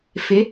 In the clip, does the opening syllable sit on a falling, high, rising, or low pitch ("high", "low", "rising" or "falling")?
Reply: rising